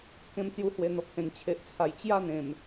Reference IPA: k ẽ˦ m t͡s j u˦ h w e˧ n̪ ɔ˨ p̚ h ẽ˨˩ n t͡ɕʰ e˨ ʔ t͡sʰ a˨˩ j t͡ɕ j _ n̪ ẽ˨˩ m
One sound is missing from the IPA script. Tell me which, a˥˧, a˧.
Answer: a˥˧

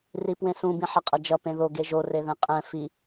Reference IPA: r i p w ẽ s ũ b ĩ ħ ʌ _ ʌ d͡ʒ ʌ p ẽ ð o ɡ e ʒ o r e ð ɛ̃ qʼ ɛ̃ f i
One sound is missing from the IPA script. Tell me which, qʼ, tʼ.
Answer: qʼ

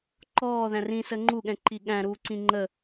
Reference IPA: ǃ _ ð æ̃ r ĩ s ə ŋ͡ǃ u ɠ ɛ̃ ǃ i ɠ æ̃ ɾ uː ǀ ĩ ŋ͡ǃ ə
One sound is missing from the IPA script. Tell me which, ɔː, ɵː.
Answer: ɔː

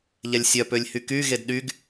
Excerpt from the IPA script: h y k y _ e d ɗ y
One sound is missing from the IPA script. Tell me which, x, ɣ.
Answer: ɣ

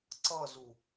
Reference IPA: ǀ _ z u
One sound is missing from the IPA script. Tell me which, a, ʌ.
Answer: ʌ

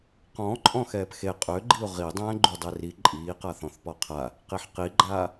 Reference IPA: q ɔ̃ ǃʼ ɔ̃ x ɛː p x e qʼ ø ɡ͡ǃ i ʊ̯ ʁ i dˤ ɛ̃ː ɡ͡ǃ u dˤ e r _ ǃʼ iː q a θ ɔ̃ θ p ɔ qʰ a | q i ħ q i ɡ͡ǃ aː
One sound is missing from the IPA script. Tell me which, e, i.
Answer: i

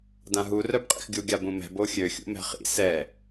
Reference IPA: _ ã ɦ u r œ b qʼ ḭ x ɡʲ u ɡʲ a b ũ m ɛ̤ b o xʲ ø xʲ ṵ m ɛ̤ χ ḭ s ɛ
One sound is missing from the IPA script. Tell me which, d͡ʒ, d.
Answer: d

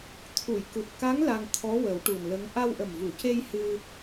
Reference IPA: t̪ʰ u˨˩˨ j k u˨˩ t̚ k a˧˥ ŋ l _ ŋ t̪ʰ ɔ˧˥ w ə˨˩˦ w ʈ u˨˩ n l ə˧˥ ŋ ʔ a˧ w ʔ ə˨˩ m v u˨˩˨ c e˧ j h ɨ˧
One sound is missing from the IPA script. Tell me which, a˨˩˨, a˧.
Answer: a˧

